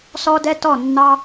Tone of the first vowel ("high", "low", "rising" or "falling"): high